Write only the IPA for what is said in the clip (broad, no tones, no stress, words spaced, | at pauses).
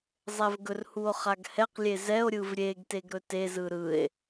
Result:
zˤɛvɡɵrhuo̯ χaɡhɛqlʲe zɛo̯ɾʲɯv ɾʲeɡ teɡɾɵtezɯ ɾɯe̯